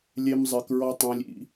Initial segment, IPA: lʲ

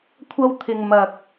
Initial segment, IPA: kʷʰ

